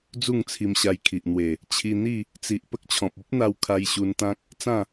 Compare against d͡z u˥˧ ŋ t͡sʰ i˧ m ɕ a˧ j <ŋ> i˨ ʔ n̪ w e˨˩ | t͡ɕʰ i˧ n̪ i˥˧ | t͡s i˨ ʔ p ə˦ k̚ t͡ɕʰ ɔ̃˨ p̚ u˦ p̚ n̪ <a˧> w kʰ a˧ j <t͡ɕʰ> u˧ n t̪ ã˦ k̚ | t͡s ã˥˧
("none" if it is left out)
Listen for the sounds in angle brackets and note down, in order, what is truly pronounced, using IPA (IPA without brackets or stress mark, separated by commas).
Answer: kʰ, a˧, ɕ